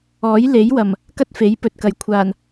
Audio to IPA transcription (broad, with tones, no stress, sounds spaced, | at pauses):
ɔː˨˥ j l e˨˥ j w ɐ˨˩ m | k ɐ˥ t̚ f e˨˥ j p ɵ˨ t̚ k ɐ˨ j kʷʰ aː˨˩ n